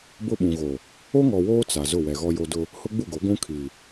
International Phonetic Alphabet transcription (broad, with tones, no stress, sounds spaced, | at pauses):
b ʊ˦ ɓ ũ˨ ɣ o˨ | o˦ ŋ ɔ˨ w oː˦ t͡s a˨ z ʊ˦˨ w ɛ˨ ɣ ɔ˦ j o˦ d ʊ˦ | h ʊ˦ ɡ͡b u˦˨ ɡ o˨˦ ɡʷ ũ˦ kʰ i˨